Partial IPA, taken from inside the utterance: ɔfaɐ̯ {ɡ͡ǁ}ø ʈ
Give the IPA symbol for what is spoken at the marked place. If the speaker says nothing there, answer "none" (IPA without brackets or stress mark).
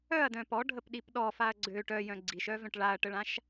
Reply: ɡ͡ǀ